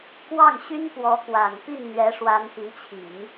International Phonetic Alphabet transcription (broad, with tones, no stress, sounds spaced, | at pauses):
k w ɑ˥˩ ŋ ɕ y˥ n p w ɔ˧˥ k w a˨˩ n p i˥˩ n n̪ ɥ ɛ˧˥ ʂ w a˧˥ n p i˧˥ t͡ɕʰ i˨˩˦ ŋ